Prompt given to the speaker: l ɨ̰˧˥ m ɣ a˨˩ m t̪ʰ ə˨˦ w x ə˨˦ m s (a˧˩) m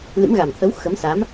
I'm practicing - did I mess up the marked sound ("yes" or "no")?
yes